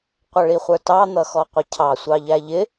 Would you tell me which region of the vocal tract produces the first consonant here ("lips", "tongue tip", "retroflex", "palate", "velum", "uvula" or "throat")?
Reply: uvula